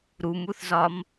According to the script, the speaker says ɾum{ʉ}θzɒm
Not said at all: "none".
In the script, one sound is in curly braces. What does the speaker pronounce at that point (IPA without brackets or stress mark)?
u